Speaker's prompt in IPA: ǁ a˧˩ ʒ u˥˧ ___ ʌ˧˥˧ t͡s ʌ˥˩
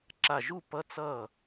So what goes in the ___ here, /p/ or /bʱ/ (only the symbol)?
p